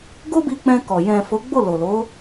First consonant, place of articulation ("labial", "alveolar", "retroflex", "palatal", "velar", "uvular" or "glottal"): velar